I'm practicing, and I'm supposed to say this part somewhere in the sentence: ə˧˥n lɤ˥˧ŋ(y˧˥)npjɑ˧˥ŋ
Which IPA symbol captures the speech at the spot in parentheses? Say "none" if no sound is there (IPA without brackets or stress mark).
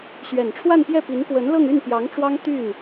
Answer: y˥˩